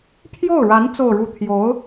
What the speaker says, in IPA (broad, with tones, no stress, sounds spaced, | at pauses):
pʰ j o˥˩ ʊ̯ ɻ a˧˥ n t͡s o˥˧ ʊ̯ ɻ u˥˩ t̪ʰ j o˧˥ ʊ̯